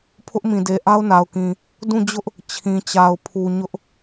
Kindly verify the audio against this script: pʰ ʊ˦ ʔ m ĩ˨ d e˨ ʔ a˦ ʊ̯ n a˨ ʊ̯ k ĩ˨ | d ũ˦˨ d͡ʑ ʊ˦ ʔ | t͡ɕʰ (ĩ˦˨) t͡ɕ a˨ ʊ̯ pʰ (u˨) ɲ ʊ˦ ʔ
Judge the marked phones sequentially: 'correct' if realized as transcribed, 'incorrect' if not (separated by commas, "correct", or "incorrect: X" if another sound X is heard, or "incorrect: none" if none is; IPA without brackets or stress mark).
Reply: incorrect: ĩ˨, correct